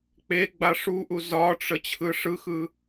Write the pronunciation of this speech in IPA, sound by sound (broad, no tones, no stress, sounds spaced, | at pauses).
k͡p e ɡ͡b a ʂ u ʔ u z ɒ ʈ͡ʂ ə t͡ɕʰ ɯ ʂ ɯ x ɯ